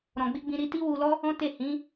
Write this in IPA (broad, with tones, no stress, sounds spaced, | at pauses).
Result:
ɾ ɔ̃˨ ɡ͡b i˧ ɡ͡b ĩ˧ ɾ i˧ t i˦ w u˧ l ɔ˦ | ɔ̃˦ t e˦˨ h ĩ˨˦